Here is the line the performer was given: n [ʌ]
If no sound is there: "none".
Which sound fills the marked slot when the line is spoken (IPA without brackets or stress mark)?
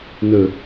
ə